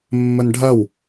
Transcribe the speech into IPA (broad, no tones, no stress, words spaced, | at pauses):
mːənɖʱɐw